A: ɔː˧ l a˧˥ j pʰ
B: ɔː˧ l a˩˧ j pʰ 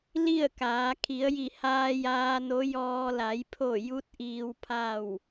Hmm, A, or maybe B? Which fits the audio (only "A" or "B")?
B